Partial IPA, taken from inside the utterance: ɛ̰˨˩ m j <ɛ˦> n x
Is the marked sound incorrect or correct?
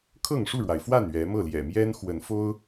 correct